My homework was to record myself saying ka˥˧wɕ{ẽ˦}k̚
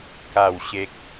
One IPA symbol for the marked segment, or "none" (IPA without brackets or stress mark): e˦